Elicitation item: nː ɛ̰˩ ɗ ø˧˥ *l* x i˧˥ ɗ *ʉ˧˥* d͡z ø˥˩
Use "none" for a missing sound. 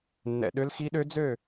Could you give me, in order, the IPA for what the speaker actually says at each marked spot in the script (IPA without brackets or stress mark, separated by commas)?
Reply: l, ø˧˥